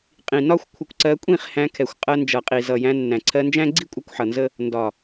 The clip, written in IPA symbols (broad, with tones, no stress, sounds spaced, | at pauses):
qʼ ĩ˨ n ɒ˦ xʷ kʷʰ ɪ˧ kʷ ǀ ɜ˧ kʷʼ ĩ˦˨ χ h æ̃˧ kʰ ɛ˨ xʷ qʼ ɜ˧ n d͡ʒ ʌ˨ qʼ i˨ z ʌ˨ j æ̃˧ nː æ̃˨ ǀʰ ɜ˧ n d͡ʒ æ̃˦ ɡ͡ǀ i˦ kʷʼ ə˧ kʷ ħ ʌ˨ n z ə˦ | n d ɒ˨